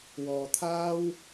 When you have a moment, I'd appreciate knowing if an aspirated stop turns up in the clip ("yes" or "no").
yes